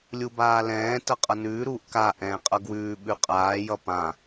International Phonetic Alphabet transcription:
lʲ u b aː l ɛ̃ː t ʌ qʼ ʌ n ʉː ɾ uː ʔ k a ʔ ɛ̃ː qʼ ʌ ɡ w ʉː ɓ ʉ qʼ aː j ʌ p ã

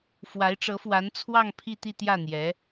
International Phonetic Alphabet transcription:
f w a˧˥ ɪ̯ ʈ͡ʂ ɤ˧˥ f w a˧˥ n t͡sʰ w ɑ˥˧ ŋ pʰ i˥˧ t̪ i˥˧ t̪ j ä˥˩ n̪ j ɛ˧˥

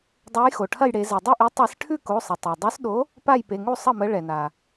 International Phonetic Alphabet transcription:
dˤ o˨˥ j x o˩ ʈʰ ɐ˥˩ j ɽ e˧˩˧ z ɛ˩ dˤ ɐ˥˩ ʔ e˨˥ tˤ e˧˩˧ s ʈʰ ʉ˥˩ k o˩˧˩ sˤ ɐ˩ tˤ ə˩ j dˤ ʉ˨˥ s ɗ o˨˥ | p a˥˩ j p e˩˧˩ ŋ u˥˩ sˤ ɐ˥˩ m ə˨˥ ɭ ɛ˩ n a˩

